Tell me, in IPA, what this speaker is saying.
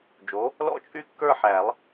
d͡ʒo˩˥ | lɔ̰˥˧ t͡ʃʼy˥˧kːə˞˥˧ħæ˨˩˦lˠ

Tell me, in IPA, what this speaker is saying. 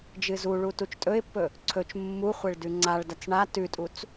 d͡ʒɨzuɭu tut͡ʃtʼɵɪ̯pːɵ | ǀʰɵt͡ʃ mːuχʷeɭ dʉŋ͡ǀaɭdɐt͡s ɳa tʉtʼut͡s

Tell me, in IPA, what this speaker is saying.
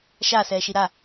ʃasɛːʃi ɾa

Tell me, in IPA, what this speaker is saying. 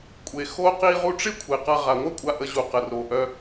kʷʼe˨ xo˧qi˧ ʁu˧ʈ͡ʂɪ˦ kʷʰe˨qa˧ ʁa˨ŋʷa˦kʷʼa˧ ʔə˧ʑu˨qə˨ ro˨ ʔœ˧

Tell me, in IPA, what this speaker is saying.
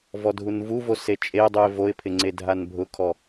vɔdʱunvuvo set͡ʃʼedˤuɪ̯ voɪ̯pʰɪ ŋ͡ǀedʱanbʱʊkʰɔ

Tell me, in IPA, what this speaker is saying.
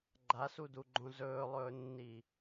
ɡ͡ǃasuduɡ͡ǃõ zɵːlˠɵːnːi

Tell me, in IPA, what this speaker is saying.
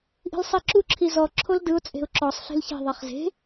ʔi̤lsˤiǁu ǁʰizɔ ǁʰoldɯʊ̯ t͡sʼe̤ʊ̯ǁɔsˤ ɬi̤lçe̤ ðˤeχze̤

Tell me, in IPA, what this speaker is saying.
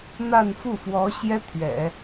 n̪a˥˧nfu˥˩fwɔ˧˥ɕjɛ˥ t̪ʰɥɛ̰˨˩˦

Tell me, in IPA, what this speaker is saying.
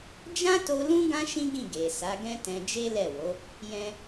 d͡ʒã˦to˧ lũ˦ ɡã˦ʃĩ˦ɡĩ˦˨ ɡe˨ sa˨˦ɡɛ̃˦tɛ̃˧ d͡ʒe˦lɛ˦˨wo˨˦ | jɛ̃˧

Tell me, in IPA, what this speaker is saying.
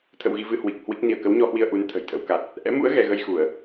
t̪ʰə̰˧˨wɣi˧vɨ˧ hwi˨˩k̚ hwi˦˥k̚ ni˧˩ə̯kə˨˦wɲɔ˧hwi˧ə̯ ʔu˨˦nt̪ʰə̤˨˩jt̪ʰə̰˧˥wka˨˩t̚ | ʔɛ̰˧˥mṵ˧˥ə̯ ɣɛ˧ ɣə˧jxu˧˩˨ə̯

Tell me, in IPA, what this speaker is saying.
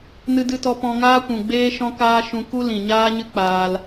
nɨ˧dɨ˧tɔ˧ pɔ̃˧ŋaː˦ kʷũ˨ɡ͡beː˦ ʃɔ̃˦kaː˦ ʃũ˧ku˦ lĩ˨ɲaː˦ɲɨ˦ k͡paː˧l

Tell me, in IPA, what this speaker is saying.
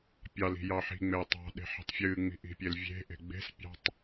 pʲɑli̤ jɑħi̤ŋ͡meː tˤɑ̤ ɗe̤ħi̤tˤfʲɨːŋ͡mi̤ ʔi̤pʲelvʲe̤ʔe̤ ɡ͡be̤spʲɑ̤tˤ

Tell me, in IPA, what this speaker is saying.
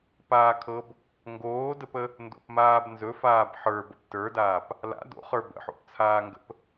paːkʰɤb | ŋɡoːdəpə | ndo̰pmaːbnzɵfaːb ħə˞bəp tə˞daːp | la̰ do̰χə˞ bə̰ħo̰pt͡sʰaːŋɡə̰p

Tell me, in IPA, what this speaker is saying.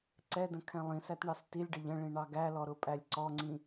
ǀɛdə̃kʰɛ̃ lˠĩsætɳɑs tilʲɖəʎ ə̃ɭĩɳɑ ɡælɔɾʊpʼælʲ ǀɔŋ͡ǀĩ

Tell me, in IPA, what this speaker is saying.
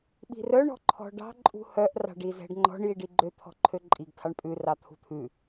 ɓi̤rœ ɳɔ̤ǃʰɔ̤ɖɑ̤ ǃʼṳhœʔ rɑ̤ɖizɛ̤ɖŋ͡ǃɔ̤ɳ jiɖiɡ͡ǃø t̪ʰɔ̤ǃʰøǃʼiɡ tʰɑɳpʼʉ rɑt̪ʰṳt̪ʰʉ

